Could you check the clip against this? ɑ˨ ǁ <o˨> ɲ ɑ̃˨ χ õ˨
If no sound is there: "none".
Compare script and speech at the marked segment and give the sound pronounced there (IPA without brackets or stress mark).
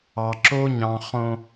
o˦